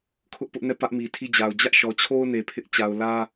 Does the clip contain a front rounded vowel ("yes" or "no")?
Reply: no